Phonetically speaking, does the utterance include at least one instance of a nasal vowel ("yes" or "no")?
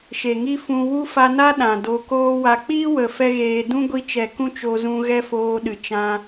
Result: yes